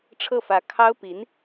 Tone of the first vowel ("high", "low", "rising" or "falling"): falling